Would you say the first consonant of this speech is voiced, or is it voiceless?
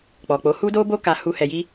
voiceless